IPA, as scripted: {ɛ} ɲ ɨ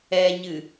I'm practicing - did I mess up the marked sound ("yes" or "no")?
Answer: no